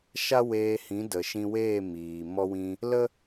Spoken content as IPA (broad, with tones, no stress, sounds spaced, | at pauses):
ʃ a˦ w eː˧ h ĩ˨˦ d ə˨ ʃ ĩ˧ w eː˦˨ m iː˨ m ɔ˧ w ĩ˧ | l ə˦